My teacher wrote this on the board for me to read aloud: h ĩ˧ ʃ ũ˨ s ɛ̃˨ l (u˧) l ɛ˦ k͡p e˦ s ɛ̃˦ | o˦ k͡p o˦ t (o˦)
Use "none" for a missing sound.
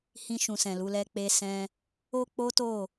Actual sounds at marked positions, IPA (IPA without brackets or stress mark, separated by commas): u˨˦, o˦˨